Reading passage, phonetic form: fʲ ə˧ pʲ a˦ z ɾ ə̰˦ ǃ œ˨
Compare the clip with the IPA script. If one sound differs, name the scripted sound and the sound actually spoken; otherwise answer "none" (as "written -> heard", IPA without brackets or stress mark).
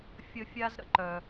pʲ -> fʲ